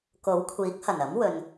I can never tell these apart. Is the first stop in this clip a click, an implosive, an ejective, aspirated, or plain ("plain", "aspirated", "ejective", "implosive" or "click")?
plain